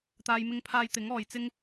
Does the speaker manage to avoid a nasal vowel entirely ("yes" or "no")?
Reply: yes